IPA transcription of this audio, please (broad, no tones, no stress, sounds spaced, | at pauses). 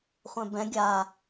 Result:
χʷ ɛ̃ b ɛ̃ ɡʲ a